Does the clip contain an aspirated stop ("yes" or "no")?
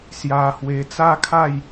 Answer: yes